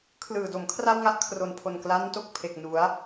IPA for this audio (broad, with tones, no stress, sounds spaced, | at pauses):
kʰ l ɯː˨˩ d o˩˦ m kʰ r a˥˩ w ŋ a˥˩ ʔ kʰ r o˨˩ n pʰ o˨˩ n k l a˦˥ n t o˥˩ k̚ pʰ e˨˩ k̚ n u˩˦ a̯